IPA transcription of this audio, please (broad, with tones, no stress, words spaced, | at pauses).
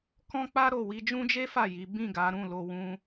kɔ̃˦k͡pa˦ ɾo˦˨ wi˧d͡ʒũ˦d͡ʒe˦fa˦˨ ji˨˦ bĩ˦˨ɡa˨˦ ɾũ˦˨lo˧ wũ˦